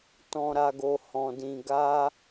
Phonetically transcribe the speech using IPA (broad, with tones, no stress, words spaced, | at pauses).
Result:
tɔ̃˨ɾa˨ɡo˨ hɔ̃˨dĩ˨ ɡa˧